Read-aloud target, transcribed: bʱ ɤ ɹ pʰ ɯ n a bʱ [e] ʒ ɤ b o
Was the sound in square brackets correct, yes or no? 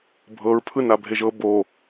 yes